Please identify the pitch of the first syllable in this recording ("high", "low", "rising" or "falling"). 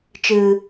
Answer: low